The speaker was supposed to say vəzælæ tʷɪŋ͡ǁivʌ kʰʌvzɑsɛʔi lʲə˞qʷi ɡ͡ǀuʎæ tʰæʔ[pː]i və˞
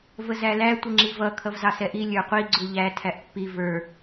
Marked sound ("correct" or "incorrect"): correct